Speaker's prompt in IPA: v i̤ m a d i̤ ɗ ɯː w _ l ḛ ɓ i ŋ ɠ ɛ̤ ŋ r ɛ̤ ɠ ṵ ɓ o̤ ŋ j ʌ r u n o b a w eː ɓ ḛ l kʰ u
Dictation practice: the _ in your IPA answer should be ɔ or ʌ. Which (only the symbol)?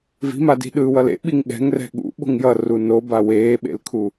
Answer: ʌ